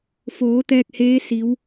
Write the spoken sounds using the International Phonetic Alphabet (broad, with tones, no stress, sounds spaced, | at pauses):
f oː˩˧ t̪ ɛː˧ k̚ h eː˧˥ s i˩˧ w